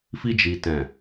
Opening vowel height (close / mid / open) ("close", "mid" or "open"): close